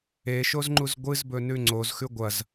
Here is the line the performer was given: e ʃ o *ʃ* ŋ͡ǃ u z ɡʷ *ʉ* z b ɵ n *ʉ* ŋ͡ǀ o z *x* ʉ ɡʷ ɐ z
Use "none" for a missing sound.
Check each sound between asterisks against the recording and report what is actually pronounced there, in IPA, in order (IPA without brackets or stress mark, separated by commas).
z, ɨ, ʉ, x